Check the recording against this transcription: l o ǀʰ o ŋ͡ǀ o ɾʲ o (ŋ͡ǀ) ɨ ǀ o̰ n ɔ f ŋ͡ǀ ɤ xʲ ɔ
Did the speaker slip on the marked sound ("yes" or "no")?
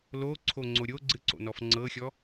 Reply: yes